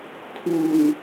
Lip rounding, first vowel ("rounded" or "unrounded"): rounded